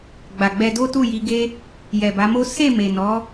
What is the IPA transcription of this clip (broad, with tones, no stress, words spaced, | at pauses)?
ɡ͡ba˨ɡ͡bɛ˧do˦tu˦˨ ji˧ɡe˦ | jɛ˨ba˨˦mo˦ se˦˨ me˨nɔ˨˦